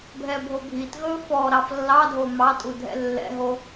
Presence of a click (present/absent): absent